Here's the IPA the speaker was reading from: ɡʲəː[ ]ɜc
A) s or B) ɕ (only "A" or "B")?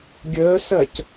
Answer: A